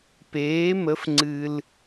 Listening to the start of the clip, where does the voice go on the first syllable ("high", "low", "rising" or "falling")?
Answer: rising